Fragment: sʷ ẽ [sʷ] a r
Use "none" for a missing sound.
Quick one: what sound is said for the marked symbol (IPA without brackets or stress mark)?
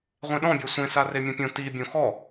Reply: s